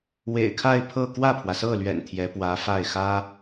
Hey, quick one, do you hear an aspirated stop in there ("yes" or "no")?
yes